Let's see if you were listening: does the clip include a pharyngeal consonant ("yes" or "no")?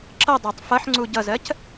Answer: yes